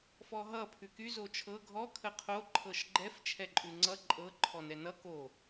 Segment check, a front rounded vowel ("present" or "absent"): present